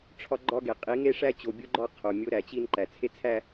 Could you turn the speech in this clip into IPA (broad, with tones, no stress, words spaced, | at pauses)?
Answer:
ʈ͡ʂʰɒ˦ɡ͡ǃɒ˦ɡe˨ qʼi˨˦ŋe˦ʂæ˦t͡ɕo˨ bʲu˦ɡ͡ǃɒ˦ qʰo˨mʲo˦ɾæ˨t͡ɕi˦n ǃæ˨t͡sʰe˦t͡sʰæ˦